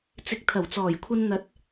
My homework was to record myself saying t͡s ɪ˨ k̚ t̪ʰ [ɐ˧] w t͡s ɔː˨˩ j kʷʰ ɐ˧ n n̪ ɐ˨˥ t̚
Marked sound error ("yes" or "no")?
yes